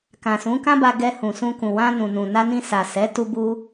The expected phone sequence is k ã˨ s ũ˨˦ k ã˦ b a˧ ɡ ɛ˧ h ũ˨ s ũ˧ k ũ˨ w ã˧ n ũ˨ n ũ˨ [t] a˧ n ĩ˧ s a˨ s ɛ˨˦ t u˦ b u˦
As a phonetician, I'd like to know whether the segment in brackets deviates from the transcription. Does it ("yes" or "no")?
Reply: yes